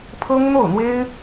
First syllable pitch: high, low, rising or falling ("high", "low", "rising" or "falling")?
high